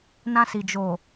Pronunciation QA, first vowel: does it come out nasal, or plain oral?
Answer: nasal